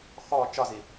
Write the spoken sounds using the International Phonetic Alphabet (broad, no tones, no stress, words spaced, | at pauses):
xɔ t͡ʃɒzi